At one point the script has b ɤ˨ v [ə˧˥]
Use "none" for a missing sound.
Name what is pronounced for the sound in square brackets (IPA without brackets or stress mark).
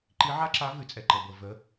ə˧˥